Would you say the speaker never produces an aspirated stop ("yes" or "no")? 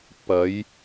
yes